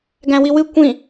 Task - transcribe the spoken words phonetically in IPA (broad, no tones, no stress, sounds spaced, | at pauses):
ɡ æ̃ w i w ɨ kʷ ĩ